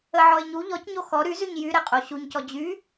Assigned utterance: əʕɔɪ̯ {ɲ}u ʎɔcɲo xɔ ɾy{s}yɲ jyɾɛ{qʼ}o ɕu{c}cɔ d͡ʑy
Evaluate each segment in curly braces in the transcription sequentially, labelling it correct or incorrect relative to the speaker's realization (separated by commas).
correct, incorrect, correct, incorrect